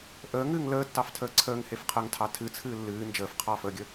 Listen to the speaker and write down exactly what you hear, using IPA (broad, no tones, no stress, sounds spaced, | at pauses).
ʔ əː ŋ ɨː ŋ l əː tː ɑ f tʰ əː ǀʰ əː ŋ h e f qʰ əː ŋ tʰ ɑ tʰ ɨ t͡sʰ ɨː lː ɨː n d͡ʒ əː f qʰ ɑː f əː ɡʲ ə